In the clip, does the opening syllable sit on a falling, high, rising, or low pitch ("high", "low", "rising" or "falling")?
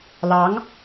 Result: rising